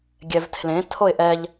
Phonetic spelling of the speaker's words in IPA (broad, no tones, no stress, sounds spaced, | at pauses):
ɡʲ ɛ v tʰ l ẽ tʰ o ɪ̯ ʔ ɛ ʎ